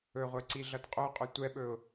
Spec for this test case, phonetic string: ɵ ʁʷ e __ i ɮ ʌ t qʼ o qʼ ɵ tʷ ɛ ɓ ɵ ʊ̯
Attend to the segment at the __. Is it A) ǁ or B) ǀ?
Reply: B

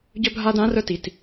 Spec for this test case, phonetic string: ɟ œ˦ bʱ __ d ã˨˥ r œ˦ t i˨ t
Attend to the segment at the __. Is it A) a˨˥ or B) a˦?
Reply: B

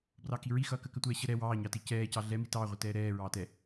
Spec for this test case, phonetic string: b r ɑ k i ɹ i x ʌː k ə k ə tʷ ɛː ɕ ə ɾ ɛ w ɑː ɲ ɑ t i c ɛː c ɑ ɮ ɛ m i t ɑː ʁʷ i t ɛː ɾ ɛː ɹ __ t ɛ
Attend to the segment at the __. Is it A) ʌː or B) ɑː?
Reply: B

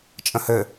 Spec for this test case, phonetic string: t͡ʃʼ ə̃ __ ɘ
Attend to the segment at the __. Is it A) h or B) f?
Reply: A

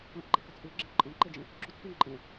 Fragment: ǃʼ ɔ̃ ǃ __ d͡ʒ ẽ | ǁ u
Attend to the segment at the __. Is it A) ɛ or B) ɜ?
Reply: A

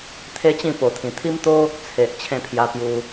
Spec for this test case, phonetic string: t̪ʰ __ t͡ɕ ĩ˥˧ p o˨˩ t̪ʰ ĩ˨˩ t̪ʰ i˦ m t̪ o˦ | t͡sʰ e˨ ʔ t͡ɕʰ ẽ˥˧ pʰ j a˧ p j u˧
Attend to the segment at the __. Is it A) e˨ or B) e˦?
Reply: B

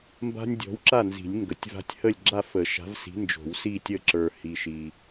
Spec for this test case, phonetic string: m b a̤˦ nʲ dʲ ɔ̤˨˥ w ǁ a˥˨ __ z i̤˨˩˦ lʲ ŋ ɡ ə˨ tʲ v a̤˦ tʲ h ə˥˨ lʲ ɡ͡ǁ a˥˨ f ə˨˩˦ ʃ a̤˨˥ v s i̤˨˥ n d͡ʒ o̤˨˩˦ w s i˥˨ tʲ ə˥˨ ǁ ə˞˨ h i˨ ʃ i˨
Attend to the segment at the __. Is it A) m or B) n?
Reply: B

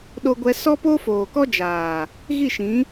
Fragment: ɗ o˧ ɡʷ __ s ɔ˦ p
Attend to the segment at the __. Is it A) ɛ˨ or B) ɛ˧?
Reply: B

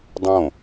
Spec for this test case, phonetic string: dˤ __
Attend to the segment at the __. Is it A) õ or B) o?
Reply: A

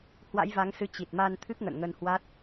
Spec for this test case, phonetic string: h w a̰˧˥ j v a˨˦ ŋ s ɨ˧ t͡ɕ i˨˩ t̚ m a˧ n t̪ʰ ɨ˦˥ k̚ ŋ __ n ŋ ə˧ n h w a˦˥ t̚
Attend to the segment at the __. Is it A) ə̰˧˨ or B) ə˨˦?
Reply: A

